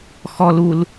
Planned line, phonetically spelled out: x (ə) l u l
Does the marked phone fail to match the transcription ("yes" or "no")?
yes